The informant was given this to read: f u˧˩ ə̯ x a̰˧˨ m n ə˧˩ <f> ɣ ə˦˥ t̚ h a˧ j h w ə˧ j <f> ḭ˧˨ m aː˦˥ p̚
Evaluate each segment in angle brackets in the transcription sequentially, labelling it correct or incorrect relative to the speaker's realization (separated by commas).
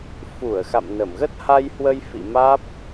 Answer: incorrect, correct